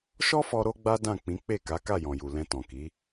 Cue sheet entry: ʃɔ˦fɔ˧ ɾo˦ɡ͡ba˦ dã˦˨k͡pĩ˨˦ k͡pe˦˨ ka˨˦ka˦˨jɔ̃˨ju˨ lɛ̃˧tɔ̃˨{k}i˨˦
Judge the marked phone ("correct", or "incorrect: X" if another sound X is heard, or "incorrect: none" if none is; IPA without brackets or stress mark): correct